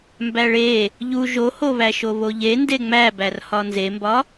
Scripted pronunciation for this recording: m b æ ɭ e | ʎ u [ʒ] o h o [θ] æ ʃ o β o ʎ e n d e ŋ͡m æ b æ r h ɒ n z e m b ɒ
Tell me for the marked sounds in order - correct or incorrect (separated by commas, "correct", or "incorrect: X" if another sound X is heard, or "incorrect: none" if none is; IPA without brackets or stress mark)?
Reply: correct, incorrect: β